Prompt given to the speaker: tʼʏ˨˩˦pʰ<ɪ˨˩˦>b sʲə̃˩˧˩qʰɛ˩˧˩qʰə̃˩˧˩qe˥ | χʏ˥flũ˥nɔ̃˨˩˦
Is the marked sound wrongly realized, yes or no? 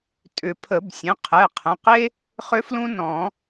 yes